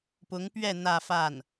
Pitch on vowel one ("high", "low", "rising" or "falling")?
rising